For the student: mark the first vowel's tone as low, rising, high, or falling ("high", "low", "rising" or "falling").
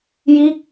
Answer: falling